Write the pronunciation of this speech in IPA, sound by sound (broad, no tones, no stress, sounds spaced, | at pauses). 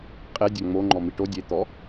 qʼ e dʲ a ŋ͡m o ŋ͡ǃ ɔ m i ʈ o dʲ e t̪ ɔ